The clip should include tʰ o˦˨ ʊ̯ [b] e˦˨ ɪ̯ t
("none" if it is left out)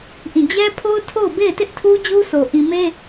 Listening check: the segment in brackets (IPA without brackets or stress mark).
b